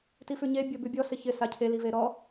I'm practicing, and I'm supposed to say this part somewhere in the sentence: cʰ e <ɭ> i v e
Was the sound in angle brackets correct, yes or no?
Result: no